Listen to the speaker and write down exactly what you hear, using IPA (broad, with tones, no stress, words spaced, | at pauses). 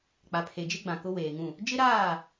k͡pa˨pʰe˨d͡ʒɪ˦ ɡ͡bã˨kʊ˦ weː˨ŋũ˦˨ | d͡ʒɪ˦ɾaː˦˨